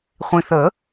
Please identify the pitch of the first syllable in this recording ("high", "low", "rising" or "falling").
low